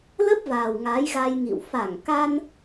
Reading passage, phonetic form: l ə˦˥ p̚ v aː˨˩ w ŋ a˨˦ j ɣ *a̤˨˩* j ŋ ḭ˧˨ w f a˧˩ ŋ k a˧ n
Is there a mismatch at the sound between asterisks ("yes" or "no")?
yes